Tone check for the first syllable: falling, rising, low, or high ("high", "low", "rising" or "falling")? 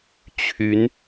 rising